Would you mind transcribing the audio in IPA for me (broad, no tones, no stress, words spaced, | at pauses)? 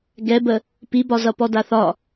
ɡɛbə | pibɒzʌ pɔdaθɒ